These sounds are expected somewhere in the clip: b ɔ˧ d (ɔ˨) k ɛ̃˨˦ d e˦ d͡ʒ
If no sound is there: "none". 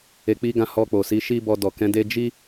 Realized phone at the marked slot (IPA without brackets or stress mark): ɔ˨